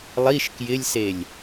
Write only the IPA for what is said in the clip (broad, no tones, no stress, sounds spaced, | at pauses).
lˠ i ʃ k j ɪ lʲ s e lʲ